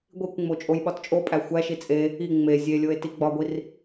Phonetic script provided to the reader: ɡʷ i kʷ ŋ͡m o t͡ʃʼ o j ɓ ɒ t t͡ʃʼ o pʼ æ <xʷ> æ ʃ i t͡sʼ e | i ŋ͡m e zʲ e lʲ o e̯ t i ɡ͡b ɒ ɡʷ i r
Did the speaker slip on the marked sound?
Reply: no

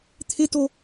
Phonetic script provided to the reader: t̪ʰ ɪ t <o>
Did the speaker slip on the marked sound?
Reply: no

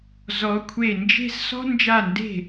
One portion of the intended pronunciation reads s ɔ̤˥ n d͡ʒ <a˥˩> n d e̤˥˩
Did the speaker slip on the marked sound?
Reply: no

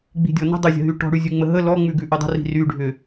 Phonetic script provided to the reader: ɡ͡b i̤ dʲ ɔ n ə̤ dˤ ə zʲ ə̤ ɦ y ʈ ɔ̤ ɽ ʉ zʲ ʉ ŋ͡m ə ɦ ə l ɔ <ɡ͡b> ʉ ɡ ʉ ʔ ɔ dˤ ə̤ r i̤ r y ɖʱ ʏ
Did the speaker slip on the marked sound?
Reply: yes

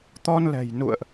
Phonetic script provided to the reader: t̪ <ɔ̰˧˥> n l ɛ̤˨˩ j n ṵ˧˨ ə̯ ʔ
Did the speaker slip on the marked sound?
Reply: yes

